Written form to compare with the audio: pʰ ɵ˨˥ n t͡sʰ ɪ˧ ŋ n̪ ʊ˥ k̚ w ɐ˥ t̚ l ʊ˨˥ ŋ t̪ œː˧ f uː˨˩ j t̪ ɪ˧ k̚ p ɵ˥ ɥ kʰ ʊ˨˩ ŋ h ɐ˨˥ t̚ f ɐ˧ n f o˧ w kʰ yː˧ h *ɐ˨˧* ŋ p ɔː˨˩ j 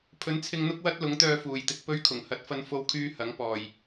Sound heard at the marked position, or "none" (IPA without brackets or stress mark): ɐ˨˥